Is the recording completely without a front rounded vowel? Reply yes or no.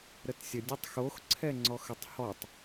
yes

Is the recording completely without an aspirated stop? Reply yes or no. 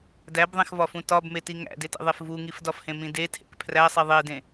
no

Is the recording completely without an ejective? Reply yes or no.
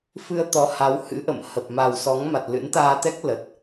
yes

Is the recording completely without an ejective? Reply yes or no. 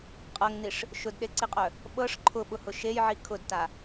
no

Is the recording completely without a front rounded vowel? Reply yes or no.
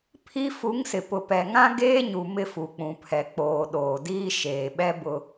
yes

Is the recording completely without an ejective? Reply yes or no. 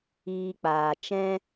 yes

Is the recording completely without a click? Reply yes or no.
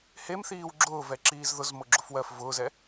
no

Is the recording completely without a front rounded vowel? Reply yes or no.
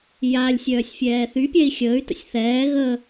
no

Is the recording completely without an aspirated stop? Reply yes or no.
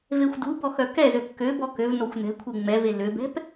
no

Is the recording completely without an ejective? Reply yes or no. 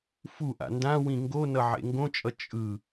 no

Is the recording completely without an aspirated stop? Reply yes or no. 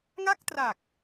yes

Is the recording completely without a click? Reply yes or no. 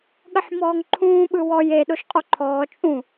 no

